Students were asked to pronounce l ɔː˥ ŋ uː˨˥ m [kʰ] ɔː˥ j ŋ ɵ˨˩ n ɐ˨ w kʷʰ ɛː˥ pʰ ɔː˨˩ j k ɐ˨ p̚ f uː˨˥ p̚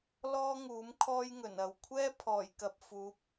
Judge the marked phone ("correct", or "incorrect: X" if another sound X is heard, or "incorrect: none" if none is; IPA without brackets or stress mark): correct